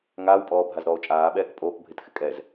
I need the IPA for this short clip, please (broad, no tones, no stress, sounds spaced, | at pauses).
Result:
ŋ aː w pʼ ɔː bʱ a z ɾ ɔː o̯ t͡ʃʼ aː ɓ ɛː k pʼ oː k bʱ ɪ t x ɪ kʼ ɛ z